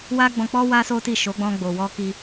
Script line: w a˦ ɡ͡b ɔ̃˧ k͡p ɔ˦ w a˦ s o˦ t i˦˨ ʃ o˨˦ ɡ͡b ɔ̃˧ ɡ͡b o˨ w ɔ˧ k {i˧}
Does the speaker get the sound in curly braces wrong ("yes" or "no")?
no